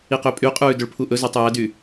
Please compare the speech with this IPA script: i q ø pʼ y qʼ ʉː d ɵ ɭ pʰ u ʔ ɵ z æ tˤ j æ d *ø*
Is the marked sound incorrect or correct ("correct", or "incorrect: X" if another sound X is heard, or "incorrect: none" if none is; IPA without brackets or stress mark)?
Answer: incorrect: y